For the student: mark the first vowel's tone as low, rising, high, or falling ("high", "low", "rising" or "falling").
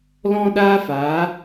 high